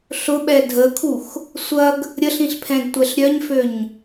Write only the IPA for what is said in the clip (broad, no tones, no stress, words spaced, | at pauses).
ɬʊɓɛ dʱəkʰux | sʷɐɡ | ɾʲəɬĩɬpʰɛ̃ɡtʷɛɬ ɾʲœɲføɲ